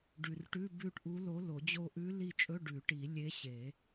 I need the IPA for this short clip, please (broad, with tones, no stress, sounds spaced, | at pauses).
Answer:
ɖ ʉ˨ r ʈ ʉ˧˥˧ b ʉ˦˨ ʈ ʔ u˧˥ l o˧˥ l o˨˩˦ d͡ʑ o˦˨ ʔ ʉ˧˥ l i˦˨ t͡ʃʼ ɵ˧˥˧ ɖ ʉ˨˩˦ ʈ i˨˩˦ lʲ e˧˥ ɕ e˨˩˦